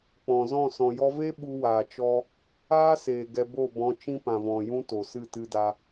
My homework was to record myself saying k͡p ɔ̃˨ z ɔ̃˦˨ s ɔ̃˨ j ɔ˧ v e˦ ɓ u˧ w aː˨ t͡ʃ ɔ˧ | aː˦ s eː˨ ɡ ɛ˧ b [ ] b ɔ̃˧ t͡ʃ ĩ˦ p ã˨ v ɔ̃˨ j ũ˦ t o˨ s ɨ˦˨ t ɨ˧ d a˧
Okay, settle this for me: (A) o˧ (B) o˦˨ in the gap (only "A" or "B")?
B